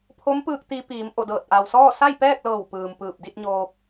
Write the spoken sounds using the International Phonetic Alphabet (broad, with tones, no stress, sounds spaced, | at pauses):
pʰ o˧˥ m p ɯː˧ k̚ t̪ i˧ p iː˩˧ m ʔ o˧˩ d ɤː˧˩ t̚ ʔ a˩ w s ɔː˥˨ s a˥˨ j p ɛː˥˨ k̚ l ɤː˧˩ w p ɯː˩ m p ɯː˧˩ p̚ d i˥˨ t̚ ɲ oː˧ p̚